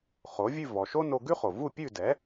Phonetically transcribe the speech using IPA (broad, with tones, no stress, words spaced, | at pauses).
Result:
χo˩˥vʲʉ˥˩ vɔ˩ ʃo˥ no˧ɡʉ˥χo˩ vu˥˩pʲʉ˥˩dɛ˩˥